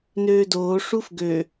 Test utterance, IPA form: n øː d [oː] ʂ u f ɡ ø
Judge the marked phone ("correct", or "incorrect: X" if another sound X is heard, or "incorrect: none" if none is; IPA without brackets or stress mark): correct